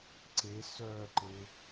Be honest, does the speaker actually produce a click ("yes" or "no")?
yes